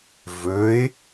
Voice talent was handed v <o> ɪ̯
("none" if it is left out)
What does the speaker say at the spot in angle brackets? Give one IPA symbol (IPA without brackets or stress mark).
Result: ɵ